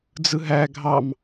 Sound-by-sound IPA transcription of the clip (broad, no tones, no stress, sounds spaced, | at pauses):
d͡z ɯ ɦ æ ɡʱ ɑ m